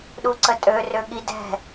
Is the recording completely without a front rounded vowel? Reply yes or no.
no